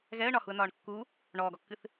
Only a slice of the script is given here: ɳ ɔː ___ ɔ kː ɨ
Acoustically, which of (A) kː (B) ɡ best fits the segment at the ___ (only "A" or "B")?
B